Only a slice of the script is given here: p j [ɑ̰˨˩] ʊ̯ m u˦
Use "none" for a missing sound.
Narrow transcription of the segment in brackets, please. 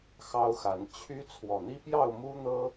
ɑ˥˨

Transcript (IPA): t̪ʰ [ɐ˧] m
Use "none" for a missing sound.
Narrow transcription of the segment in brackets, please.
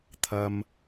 ɐ˧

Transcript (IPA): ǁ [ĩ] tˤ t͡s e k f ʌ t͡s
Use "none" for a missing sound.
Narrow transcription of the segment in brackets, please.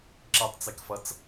i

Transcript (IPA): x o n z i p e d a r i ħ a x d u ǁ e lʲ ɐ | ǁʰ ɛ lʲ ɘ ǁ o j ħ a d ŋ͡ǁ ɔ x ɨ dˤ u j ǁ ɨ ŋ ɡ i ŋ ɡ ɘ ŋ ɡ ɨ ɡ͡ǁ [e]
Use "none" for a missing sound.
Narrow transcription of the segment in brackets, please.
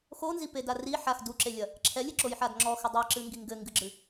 ɨ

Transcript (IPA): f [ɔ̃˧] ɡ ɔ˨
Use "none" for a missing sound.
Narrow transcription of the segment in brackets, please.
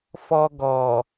ɔ˧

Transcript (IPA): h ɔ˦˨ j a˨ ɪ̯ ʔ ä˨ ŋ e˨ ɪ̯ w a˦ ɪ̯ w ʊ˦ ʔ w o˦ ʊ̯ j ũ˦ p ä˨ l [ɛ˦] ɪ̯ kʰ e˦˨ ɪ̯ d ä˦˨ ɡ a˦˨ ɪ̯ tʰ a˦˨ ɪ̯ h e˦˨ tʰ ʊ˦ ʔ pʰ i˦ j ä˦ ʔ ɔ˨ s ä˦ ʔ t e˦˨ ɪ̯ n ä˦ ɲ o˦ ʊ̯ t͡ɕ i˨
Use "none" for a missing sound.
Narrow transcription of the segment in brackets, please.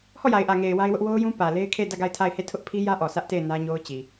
e˦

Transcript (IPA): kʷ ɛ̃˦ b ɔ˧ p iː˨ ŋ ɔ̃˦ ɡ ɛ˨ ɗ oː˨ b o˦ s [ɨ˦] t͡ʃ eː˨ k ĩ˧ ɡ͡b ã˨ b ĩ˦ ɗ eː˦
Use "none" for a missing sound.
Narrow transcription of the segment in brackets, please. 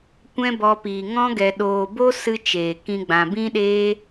ɨ˦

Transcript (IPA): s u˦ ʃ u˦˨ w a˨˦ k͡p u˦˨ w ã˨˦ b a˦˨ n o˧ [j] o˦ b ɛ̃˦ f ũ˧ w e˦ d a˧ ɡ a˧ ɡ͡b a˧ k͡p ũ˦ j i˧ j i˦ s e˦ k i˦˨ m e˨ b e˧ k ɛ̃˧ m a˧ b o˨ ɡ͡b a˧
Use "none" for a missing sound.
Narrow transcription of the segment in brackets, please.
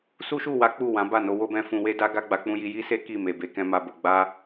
w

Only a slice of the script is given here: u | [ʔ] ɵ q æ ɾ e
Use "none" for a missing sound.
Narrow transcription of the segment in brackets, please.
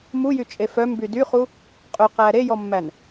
qʼ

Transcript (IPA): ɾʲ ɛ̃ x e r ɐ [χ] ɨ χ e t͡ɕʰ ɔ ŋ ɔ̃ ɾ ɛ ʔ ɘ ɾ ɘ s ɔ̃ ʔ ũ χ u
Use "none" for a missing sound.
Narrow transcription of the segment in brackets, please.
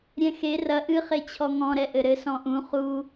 ʔ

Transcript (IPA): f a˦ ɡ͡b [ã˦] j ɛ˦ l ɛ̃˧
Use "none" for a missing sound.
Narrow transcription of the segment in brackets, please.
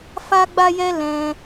a˦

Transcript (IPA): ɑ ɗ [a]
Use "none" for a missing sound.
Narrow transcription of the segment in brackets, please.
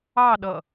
ʌ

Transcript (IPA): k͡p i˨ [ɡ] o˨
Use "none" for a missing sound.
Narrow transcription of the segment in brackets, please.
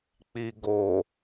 ɡ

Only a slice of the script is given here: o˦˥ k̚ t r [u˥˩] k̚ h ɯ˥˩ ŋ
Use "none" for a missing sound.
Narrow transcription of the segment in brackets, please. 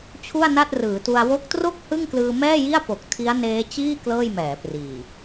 o˥˩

